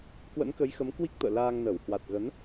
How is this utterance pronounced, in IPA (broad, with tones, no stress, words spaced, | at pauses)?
kwə̰˧˥nkə˨˦jxə˨˦m kwi˦˥k̚t̪ə̰ː˧˨ laː˧ŋnə˧˩w hwa˨˩t̚ɣə˨˦n